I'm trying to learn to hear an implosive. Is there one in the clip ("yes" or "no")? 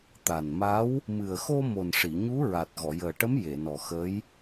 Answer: no